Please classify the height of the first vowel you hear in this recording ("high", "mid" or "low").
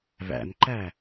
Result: low